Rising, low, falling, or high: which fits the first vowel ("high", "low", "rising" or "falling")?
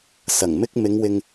low